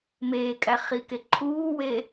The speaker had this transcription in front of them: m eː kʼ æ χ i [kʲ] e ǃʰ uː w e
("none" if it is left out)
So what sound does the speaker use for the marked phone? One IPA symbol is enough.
k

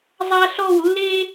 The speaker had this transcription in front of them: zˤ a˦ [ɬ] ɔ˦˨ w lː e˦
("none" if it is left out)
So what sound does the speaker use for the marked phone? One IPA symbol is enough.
ɬ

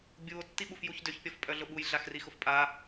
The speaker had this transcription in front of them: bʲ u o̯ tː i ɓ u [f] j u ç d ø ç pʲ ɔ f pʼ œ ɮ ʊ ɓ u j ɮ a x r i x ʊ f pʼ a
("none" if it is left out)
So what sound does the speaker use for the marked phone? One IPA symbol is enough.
f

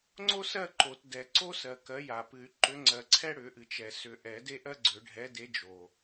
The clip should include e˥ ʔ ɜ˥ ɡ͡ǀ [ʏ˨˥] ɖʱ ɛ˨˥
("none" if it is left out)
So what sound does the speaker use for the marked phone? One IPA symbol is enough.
ʏ˨˩˦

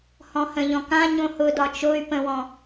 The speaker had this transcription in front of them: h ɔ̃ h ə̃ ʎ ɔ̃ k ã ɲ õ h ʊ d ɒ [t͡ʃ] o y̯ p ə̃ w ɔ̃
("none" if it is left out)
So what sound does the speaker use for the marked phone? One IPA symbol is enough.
t͡ʃ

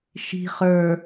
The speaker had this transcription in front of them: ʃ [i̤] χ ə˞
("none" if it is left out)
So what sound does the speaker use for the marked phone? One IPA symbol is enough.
i̤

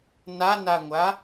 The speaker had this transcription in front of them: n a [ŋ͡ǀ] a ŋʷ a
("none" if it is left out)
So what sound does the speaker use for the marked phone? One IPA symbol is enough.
n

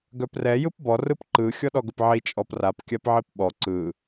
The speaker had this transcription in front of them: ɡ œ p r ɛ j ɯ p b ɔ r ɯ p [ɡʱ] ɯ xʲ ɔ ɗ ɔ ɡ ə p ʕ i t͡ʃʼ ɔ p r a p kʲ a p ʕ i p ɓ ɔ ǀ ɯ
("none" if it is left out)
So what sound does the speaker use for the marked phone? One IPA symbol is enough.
ǃ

